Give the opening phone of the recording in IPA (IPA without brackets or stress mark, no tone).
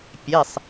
pʲ